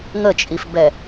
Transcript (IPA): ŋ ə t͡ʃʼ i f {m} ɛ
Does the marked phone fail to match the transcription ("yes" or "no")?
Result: yes